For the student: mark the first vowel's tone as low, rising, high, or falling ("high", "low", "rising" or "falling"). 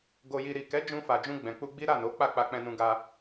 low